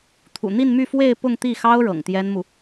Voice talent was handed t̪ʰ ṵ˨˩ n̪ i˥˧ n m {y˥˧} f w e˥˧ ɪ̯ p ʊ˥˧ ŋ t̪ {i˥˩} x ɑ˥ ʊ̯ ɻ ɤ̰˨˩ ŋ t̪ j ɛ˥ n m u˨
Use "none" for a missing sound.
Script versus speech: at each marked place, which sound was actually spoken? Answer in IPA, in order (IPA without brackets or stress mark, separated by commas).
y˥˧, i˥˩